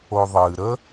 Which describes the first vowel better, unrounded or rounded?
rounded